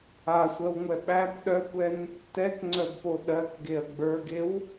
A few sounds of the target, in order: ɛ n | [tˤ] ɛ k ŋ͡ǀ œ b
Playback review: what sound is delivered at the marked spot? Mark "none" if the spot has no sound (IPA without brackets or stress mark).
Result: t